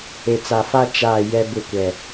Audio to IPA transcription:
e˨ t͡s a˨ f a˦ t͡ʃ aː˦˨ j ɛ˦ b ɪ˦˨ kʷ ɛ˨

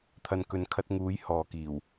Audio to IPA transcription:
t̪ʰ ɐ˨ n k ɵ˨ n kʰ ɐ˧ t̚ ŋ uː˨˥ j h ɔː˨ k iː˨˩ w

